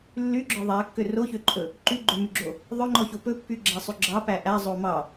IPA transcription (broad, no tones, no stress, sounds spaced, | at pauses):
lː y ɡ͡ǁ ɔ ðˤ æ kː ø r o ç ø ǃʼ ɵ | ǃ y ɡ͡ǃ ø m y ɡ͡ǁ o | ðˤ ɵ ŋ͡ǃ ɔ ç o p ɵ pː y ɡ͡ǁ æ sˤ y ɡ͡ǁ ɑ p æ ʔ æ zˤ o m ɑ